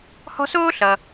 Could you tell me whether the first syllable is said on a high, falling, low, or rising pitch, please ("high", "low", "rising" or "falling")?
high